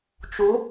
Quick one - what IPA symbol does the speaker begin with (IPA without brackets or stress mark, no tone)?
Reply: t͡ʃ